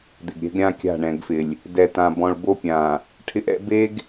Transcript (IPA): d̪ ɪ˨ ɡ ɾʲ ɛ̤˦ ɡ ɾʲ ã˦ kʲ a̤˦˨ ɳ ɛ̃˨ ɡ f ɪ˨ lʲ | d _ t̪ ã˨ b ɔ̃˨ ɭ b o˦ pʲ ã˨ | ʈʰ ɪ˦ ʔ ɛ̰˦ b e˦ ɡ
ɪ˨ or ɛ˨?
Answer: ɛ˨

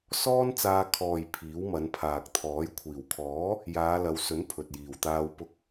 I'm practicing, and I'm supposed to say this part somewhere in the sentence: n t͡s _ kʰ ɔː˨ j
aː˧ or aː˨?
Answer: aː˧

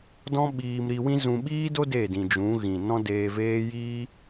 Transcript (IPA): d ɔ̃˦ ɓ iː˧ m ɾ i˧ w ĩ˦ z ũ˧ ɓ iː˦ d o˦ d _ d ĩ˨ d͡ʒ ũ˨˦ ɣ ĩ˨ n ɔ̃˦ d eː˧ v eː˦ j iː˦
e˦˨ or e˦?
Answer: e˦˨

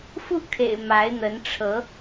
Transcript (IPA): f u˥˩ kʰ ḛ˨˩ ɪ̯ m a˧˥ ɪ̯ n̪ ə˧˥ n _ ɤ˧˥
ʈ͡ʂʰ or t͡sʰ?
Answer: ʈ͡ʂʰ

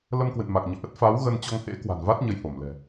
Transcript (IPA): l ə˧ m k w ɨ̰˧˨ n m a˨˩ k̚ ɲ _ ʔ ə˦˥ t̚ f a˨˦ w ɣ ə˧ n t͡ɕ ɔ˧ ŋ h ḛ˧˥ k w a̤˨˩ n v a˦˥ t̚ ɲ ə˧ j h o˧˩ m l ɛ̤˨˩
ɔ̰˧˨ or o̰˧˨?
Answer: ɔ̰˧˨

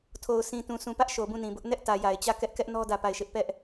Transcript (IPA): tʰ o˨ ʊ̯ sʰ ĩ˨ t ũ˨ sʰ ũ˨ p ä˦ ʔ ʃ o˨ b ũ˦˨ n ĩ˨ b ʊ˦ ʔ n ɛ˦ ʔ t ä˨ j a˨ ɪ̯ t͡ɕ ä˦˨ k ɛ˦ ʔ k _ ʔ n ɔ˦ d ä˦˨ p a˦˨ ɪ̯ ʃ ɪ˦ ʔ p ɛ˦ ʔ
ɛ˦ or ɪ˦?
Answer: ɛ˦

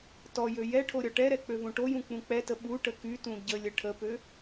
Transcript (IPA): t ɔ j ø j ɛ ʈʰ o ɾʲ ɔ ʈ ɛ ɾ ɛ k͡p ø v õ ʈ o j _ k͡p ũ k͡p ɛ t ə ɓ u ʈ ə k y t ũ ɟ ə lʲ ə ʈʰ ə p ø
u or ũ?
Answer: ũ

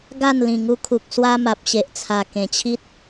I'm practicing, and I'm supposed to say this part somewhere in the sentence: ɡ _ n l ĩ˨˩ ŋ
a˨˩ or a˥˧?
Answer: a˥˧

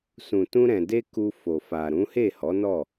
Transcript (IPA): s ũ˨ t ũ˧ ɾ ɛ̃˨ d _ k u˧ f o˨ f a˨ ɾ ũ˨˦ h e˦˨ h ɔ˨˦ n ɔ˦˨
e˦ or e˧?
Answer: e˧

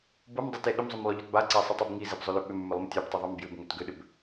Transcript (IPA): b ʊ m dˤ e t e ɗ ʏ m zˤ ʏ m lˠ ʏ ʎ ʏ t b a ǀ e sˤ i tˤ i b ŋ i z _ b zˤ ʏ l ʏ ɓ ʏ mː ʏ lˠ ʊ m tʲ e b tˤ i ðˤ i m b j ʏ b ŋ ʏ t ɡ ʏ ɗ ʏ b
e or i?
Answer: i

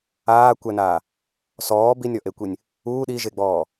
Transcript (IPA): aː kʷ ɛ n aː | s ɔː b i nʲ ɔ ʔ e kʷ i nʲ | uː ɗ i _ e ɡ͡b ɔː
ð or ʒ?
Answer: ʒ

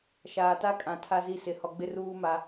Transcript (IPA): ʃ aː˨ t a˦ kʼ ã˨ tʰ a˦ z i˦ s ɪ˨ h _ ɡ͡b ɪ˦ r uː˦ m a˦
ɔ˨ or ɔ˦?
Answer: ɔ˨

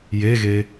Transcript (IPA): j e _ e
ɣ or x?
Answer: ɣ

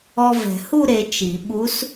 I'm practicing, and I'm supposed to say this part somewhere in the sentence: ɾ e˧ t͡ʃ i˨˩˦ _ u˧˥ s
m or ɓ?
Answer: ɓ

